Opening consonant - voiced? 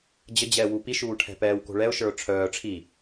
yes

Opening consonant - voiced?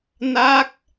yes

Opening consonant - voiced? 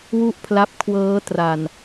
yes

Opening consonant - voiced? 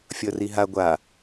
no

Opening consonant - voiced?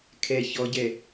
no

